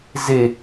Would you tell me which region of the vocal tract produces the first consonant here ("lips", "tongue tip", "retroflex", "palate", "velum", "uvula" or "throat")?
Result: tongue tip